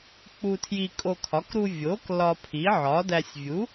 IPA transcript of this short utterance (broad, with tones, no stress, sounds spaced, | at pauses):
k͡p u˧ tʰ j i˧ kʼ o˧ kʰ ɒ˩˥ k ɾ u˧ vʲ o˩˥ k l ɒ˧ pʰ i˩˥ ʕ ɒ˩˥ d æ˧ sʲ vʲ u˩˥